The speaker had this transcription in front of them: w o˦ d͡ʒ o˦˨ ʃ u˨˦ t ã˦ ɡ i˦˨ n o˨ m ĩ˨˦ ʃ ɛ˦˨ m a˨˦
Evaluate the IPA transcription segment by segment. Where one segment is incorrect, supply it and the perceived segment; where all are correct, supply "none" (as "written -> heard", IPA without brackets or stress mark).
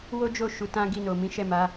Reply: none